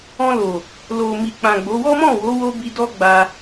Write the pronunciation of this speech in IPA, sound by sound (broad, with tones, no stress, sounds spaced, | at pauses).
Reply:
ɔ̃˧ l o˨ | l o˨ m i˨ k͡p ã˨ ɡ͡b o˨˦ w ɔ˦ m ɔ̃˦˨ w o˨˦ w o˦ b i˧ d ɔ˦ ɡ͡b a˧